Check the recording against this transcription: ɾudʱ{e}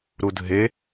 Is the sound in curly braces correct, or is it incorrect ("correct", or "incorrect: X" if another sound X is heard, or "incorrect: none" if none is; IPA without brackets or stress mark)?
correct